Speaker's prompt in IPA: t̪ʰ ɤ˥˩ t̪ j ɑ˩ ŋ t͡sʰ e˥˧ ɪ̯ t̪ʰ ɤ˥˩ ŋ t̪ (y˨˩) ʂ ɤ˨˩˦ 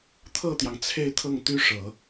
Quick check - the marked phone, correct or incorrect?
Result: incorrect: y˥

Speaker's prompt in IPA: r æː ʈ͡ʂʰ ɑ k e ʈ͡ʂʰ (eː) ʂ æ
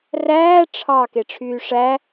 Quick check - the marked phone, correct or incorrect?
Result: incorrect: yː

